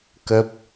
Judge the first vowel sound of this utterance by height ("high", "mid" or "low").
mid